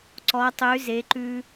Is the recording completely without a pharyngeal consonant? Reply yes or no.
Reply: yes